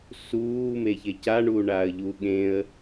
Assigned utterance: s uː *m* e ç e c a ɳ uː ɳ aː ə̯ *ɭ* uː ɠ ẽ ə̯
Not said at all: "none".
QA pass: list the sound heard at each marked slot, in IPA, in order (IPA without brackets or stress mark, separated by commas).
m, ʎ